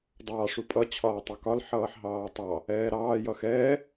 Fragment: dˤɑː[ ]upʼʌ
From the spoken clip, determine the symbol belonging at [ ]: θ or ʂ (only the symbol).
ʂ